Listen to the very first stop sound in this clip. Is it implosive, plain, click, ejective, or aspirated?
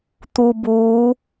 plain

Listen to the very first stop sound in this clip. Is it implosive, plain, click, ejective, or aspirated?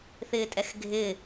ejective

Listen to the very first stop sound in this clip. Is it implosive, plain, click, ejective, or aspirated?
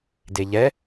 plain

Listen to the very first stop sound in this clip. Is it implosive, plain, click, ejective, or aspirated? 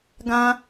plain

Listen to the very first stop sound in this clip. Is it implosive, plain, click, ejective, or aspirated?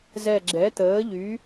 click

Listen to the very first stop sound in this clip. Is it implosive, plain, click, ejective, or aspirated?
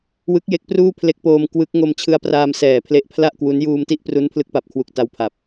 plain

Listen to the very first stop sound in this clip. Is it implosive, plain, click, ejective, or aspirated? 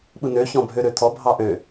implosive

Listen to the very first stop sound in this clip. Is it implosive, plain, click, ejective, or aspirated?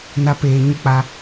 plain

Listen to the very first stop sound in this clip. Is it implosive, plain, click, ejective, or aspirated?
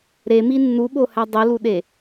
implosive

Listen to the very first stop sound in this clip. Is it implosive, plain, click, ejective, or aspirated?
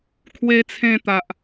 aspirated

